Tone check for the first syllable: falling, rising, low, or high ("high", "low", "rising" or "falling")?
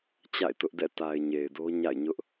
falling